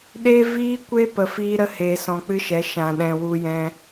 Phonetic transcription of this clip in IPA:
ɗ e˦ v iː˦ kʷ e˦ p ə˧ f iː˦ ɾ ə˦ h eː˧ s ɔ̃˧ k͡p ɨ˦ ʃ ɛ˨˦ ʃ ã˨ ɗ ɛ̃˨ w u˧ j ɛ̃˧

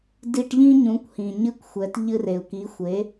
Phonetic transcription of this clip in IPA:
d i˧ ʈ ʎ ĩ˥ ɲ ũ˩˥ kʷ h ĩ˩ ɲ ɨ˥˩ kʷ xʷ ɛ˩˥ t ʎ ɨ˧ r e˩ u̯ k i˩˥ xʷ e˩˥

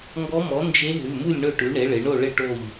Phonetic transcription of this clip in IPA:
ŋ ɡ ɔ˧˥ m ɔ˩˥ n d͡ʒ e˧˥ ɦ ʉ˩˧˩ m u˥˨ lʲ ɳ ɵ˥˨ ʈ ʉ˩˥ ɳ e˩˥ ɭ ɪ˩˧ ɳ o˥˨ ɭ ɪ˥˨ ʈ o˥˨ ʎ

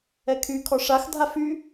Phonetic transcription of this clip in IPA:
ɛ kʰ y kʰ ɔ ʂ a x dʱ a f y

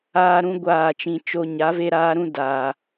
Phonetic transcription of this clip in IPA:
aː˦ ɾ ũ˦ ɡʷ aː˦˨ t͡ʃ ĩ˧ t͡ʃ o˧ ɲ a˨˦ v e˧ ɾ aː˧ ɾ ũ˧ d aː˨

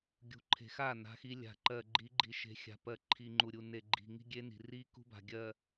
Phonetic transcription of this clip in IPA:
ɡʲ ṳ˨ ǃʰ e̤˨ x a˦˨ n a̤˦ x i˦ lʲ a̤˨ ǃ ɜ˨ ɡ͡ǃ i˨˦ ɡ͡ǃ i˨ ʃ e̤˨ xʲ a̤˨ p ɜ˨ ǃʰ i˨ ŋ͡ǃ u˨ ɾʲ u˨ n e˨ ɡ͡ǃ i̤˨ ŋ i̤˦ ɡʲ e˦ n i̤˨ r i˦ k ṳ˦ b a̤˨ ɡʲ ɜ˨

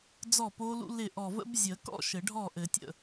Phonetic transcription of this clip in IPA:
d͡z ɔ˥˩ p o˦˥ l ṵ˦˥ l ɪ˥˩ ʔ ɔ˧˩ v ə̰˦˥ b zʲ ə˨˩˦ k ɔ̰˥˧ ʃ ɘ˨˩˦ ɖʱ ɔ˥˩ ʔ ɘ˨˩˦ tʲ ə̰˥˩

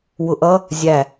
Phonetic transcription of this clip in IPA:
w ʊ ʔ ʌ | zʲ æ

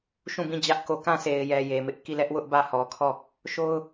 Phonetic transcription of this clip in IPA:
ʃ ũ˦˨ b ĩ˦˨ d͡ʑ ä˦ ʔ k o˨ k ã˦˨ s e˨ ɪ̯ j ɛ˨ j e˨ m ɪ˦ ʔ k i˦˨ l ɛ˦ ʔ w ʊ˦ ʔ b ä˦˨ h ɔ˨ kʰ ɔ˦˨ | ʃ o˦ ʊ̯

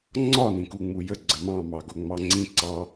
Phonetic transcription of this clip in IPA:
ŋ͡ǀ ɒ n ĩ k u ŋ͡m u j ə ɡ͡ǀ ə m ɑ̃ m ɑ ɡ o ŋ͡m ɑ ŋ͡ǀ ĩ ǀ ɑ

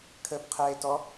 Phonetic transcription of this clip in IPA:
kʰ əː p qʰ ɛː e̯ t ɔ

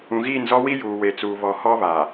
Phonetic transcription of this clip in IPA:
ũ˨ ɣ iː˦˨ n z ɔ˦ w i˦ j uː˨ w e˨ t͡s uː˨ β ɔ˨ h ɔ˦ β a˨

